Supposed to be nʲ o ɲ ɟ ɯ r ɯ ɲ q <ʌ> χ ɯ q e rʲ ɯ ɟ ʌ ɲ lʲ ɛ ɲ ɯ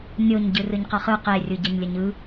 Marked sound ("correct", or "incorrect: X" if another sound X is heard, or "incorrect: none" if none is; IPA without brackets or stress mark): correct